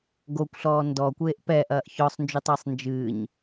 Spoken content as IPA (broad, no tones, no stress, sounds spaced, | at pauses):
ɡ o kʷ ɬ ɔː n d ɔ kʷ eː ʔ p ɛː ʔ ɐː ʔ ç ɔ sˤ n d͡ʒ u tˤ ɘː sˤ n d͡ʒ ɨː ɲ